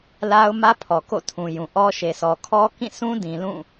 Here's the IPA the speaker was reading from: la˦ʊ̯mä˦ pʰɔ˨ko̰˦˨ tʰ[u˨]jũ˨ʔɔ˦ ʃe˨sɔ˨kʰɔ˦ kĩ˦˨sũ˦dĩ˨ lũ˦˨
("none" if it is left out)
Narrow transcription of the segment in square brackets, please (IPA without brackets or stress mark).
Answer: ũ˨